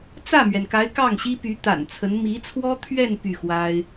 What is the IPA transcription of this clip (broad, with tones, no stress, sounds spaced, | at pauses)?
t͡s ä˥˩ m ɥ ɛ˩ n k a˧˥ ɪ̯ k ɑ˥˩ ŋ ɕ i˥ p y˧˥ t̪ a̰˨˩ n t͡sʰ ə˧˥ n m i˧˥ t͡sʰ w ɔ˥ t̪ʰ ɥ ɛ˥˧ n p y˥˩ x w a˥ ɪ̯